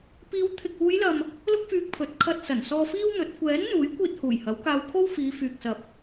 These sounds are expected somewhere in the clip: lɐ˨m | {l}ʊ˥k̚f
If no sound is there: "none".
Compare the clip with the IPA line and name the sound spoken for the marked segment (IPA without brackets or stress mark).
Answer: l